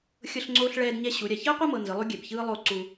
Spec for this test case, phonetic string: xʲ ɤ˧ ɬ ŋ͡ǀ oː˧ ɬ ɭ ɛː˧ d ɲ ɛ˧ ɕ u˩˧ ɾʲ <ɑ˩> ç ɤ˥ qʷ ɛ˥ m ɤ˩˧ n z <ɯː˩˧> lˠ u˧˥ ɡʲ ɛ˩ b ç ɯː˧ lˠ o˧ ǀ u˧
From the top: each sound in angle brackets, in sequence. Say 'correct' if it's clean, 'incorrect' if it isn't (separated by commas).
incorrect, incorrect